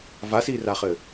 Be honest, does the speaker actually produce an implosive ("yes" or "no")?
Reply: no